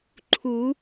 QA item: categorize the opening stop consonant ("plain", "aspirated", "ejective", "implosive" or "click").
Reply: click